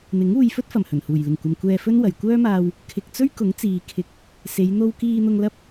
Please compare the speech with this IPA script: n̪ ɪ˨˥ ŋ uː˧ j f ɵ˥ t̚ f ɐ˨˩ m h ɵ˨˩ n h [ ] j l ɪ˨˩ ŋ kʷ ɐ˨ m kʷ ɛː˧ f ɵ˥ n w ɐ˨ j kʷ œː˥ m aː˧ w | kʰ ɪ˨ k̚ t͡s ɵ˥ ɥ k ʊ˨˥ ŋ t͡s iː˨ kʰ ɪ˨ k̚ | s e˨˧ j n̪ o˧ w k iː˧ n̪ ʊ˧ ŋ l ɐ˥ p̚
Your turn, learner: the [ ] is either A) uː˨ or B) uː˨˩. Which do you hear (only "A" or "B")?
B